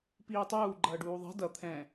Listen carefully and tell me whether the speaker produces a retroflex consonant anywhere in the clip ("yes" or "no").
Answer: yes